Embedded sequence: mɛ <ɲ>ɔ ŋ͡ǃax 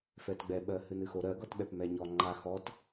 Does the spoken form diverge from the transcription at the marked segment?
no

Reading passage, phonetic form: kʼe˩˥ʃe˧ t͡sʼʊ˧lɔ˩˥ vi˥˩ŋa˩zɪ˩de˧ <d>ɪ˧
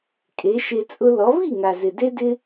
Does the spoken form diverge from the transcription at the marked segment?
no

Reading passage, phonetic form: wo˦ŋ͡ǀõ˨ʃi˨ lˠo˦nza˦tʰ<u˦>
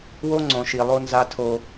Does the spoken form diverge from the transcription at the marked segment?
yes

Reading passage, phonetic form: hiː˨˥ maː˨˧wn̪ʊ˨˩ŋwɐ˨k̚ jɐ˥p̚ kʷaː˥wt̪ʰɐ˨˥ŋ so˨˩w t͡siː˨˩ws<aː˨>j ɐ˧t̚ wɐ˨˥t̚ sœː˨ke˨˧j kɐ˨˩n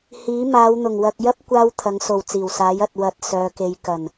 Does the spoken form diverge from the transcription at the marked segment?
yes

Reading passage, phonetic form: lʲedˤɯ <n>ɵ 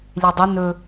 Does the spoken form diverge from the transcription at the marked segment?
no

